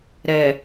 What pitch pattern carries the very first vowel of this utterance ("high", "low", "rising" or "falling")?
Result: low